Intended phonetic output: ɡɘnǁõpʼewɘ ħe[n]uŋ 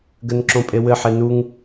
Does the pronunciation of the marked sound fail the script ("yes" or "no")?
no